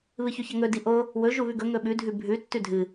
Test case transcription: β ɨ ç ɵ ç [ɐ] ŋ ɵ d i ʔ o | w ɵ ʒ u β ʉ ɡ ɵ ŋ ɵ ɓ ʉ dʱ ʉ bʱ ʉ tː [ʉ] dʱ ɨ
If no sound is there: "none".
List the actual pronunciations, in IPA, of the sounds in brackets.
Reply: ɐ, ʉ

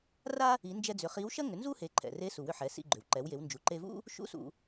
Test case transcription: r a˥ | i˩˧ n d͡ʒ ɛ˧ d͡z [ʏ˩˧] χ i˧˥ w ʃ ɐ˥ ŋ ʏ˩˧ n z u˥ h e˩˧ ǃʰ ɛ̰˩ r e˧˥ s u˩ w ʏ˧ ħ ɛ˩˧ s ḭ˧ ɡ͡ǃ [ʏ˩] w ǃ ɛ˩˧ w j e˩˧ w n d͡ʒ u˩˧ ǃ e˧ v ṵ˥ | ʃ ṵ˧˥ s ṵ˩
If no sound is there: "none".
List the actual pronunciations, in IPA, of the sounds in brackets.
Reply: ʏ˩˧, ʏ˩

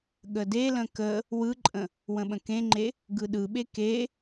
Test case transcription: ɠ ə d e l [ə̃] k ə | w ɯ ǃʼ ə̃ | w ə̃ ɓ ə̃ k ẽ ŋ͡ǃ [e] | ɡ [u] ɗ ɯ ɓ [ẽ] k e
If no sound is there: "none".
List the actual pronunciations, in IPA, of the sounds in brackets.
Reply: ə̃, e, ɯ, e

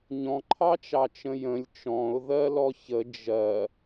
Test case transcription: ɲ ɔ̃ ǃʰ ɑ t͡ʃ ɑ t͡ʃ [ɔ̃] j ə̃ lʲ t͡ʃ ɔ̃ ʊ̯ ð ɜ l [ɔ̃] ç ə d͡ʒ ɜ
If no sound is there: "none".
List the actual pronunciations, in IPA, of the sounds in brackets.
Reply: ə̃, ɔ

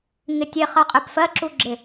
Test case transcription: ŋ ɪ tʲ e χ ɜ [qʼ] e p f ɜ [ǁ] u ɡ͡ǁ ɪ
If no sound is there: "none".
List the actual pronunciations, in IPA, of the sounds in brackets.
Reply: qʼ, ǁ

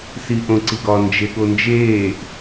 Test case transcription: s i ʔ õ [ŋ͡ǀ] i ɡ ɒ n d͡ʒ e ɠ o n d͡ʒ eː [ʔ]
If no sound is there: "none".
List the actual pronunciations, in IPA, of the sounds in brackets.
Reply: ǀ, ʔ

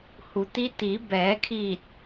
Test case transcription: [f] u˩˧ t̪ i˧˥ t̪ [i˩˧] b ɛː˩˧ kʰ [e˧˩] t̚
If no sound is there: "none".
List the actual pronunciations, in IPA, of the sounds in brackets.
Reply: h, i˩˧, i˧˩

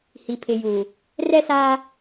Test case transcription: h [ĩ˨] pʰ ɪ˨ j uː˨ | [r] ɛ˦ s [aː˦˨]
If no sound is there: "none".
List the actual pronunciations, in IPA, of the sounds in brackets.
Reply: i˨, r, aː˦

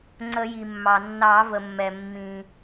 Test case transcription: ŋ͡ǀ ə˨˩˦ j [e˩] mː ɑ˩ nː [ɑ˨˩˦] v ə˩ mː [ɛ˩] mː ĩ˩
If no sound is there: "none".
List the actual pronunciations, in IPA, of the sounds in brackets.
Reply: i˩, ɑ˨˩˦, ɛ˩

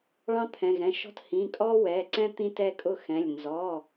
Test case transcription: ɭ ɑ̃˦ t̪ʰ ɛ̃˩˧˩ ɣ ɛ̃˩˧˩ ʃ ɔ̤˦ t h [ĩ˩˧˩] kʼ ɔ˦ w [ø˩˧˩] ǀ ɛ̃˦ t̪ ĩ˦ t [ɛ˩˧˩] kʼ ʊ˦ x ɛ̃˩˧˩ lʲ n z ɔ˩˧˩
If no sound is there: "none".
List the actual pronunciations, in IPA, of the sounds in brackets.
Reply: ĩ˩˧˩, ɛ˩˧˩, ɛ˦

